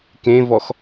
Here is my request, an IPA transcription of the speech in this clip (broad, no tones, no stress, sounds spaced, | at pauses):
k ẽ v ɔ x